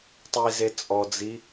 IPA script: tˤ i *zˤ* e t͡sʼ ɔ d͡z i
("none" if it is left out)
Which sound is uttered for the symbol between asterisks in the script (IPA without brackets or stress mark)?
z